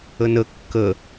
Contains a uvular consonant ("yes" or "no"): no